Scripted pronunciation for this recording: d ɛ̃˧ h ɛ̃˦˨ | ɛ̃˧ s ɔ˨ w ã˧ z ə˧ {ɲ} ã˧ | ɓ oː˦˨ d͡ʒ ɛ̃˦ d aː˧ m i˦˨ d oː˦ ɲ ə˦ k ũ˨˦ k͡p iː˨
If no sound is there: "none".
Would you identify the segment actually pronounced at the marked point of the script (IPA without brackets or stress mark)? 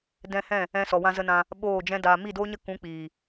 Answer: n